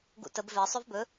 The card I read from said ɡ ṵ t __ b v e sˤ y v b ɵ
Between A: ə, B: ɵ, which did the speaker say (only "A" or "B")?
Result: A